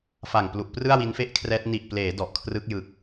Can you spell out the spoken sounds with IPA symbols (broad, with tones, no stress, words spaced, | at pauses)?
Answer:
fa˨˩ŋplu˨˩ʔprɯ˥˩a̯ wi˦˥nfe˥˩ʔkʰrɛː˦˥t̚ ni˨˩ʔpleː˩˦ dɔ˨˩ʔkʰrɯ˦˥k̚ jɯ˨˩k̚